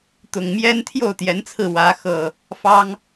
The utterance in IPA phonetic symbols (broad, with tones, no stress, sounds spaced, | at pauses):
t̪ ʊ˨˩ ŋ m j ɛ˦ n t̪ʰ j o˥˨ ʊ̯ t̪ j ɛ˨˦ n t͡sʰ ɹ̩˧ w ä˨˦ x ɤ˨˩ | f ɑ˦ ŋ